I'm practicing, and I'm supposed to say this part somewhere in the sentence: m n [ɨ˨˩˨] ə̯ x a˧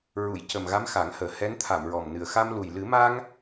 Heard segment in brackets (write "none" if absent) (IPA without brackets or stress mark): ɨ˨˩